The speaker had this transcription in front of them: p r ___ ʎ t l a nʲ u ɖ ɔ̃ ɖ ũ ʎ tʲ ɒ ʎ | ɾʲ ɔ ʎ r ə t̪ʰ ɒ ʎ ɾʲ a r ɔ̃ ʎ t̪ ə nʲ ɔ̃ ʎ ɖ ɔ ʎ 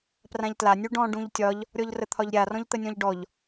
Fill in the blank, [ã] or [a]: ã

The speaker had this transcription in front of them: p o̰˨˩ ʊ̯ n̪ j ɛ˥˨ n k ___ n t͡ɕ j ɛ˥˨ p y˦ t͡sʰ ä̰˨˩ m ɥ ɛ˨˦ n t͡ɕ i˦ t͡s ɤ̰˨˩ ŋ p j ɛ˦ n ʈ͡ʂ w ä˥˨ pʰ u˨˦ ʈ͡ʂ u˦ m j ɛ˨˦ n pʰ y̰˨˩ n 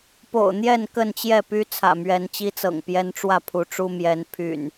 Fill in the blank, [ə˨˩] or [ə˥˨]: ə˥˨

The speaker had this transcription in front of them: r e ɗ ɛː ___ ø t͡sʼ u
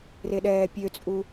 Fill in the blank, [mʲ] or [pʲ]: pʲ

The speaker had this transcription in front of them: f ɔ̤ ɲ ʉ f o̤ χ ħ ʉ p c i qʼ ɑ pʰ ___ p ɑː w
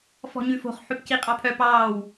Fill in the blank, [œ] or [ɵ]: œ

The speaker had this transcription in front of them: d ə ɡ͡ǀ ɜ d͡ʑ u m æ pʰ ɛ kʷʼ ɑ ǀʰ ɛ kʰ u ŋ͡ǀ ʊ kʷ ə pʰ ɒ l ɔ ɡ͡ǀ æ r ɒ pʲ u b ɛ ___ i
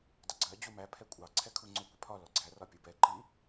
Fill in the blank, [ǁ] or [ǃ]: ǃ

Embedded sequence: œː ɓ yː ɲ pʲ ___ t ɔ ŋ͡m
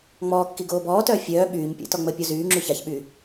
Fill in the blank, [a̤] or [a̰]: a̰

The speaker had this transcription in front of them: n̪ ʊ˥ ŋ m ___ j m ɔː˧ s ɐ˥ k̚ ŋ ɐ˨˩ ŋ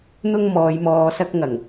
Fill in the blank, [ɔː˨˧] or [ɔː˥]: ɔː˨˧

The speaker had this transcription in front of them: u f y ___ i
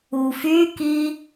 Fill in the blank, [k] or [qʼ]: k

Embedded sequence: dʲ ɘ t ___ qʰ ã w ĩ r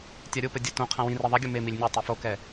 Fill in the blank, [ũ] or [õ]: õ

